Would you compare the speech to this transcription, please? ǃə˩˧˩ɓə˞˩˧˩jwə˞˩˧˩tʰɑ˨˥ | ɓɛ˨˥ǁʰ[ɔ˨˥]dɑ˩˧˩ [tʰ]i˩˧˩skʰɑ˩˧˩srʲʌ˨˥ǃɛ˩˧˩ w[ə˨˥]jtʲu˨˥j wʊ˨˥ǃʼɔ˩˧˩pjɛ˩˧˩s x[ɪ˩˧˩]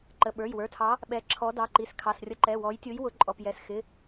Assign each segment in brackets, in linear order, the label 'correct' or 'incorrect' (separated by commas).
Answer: correct, incorrect, incorrect, correct